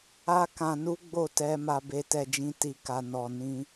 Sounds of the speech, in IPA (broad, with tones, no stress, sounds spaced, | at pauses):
a˦ k ã˧ n u˦ ɡ͡b o˦˨ t ɛ˧ m a˧ b e˧ t ɛ˧ d͡ʒ ĩ˧ t i˧ k a˧ n ɔ˧ n ĩ˦